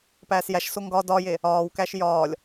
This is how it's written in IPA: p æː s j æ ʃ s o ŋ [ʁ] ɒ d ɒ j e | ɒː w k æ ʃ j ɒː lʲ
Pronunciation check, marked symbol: incorrect: ɡ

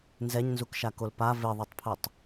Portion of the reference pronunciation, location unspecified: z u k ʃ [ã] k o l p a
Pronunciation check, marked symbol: incorrect: a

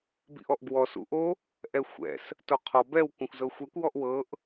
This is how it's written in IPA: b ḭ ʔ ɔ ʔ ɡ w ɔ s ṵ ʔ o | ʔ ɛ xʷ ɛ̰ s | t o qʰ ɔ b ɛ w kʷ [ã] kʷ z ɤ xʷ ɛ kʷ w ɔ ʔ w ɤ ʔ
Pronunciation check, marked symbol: correct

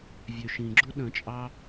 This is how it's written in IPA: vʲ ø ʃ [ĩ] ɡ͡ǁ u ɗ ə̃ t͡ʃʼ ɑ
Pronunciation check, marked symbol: correct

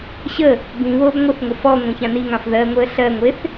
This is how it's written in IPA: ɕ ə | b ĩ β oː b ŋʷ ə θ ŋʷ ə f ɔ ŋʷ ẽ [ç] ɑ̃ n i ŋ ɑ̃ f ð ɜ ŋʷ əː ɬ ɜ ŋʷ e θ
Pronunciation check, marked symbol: correct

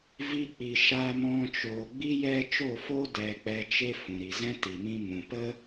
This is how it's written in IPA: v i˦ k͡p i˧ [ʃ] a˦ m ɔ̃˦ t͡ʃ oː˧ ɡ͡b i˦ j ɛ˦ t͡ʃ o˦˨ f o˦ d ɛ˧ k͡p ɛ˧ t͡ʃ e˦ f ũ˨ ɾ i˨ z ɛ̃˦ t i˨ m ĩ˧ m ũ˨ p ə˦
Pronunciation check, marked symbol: correct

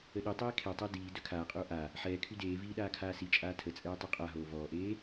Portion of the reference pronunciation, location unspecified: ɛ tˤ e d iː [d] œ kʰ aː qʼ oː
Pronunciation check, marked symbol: correct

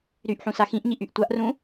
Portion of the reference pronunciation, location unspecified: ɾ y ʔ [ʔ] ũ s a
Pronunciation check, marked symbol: incorrect: ħ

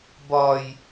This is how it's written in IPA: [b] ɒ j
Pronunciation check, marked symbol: correct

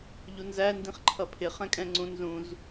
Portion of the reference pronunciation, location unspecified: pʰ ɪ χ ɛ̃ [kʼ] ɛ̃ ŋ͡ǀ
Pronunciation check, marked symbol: correct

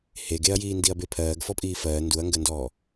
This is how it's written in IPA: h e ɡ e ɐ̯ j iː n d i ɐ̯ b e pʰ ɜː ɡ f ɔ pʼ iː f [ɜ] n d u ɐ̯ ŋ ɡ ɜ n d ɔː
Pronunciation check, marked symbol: incorrect: ɜː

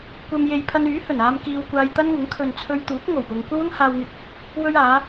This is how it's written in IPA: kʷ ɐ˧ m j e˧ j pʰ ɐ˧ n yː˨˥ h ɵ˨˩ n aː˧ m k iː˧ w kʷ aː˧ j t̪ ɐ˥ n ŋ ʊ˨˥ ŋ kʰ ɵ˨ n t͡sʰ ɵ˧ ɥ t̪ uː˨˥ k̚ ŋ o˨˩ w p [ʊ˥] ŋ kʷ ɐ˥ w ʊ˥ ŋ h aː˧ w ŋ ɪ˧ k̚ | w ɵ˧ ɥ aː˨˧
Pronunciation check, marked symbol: incorrect: ʊ˨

